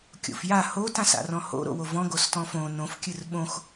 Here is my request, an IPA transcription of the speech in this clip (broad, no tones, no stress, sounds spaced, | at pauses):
kʲ o̰ f j a h o t ã s a̰ r ɔ̃ h o̰ ɾ o̰ w o v ɔ̃ ɡ o s t ɔ̃ f õ n õ f kʲ ɨ r ɓ õ x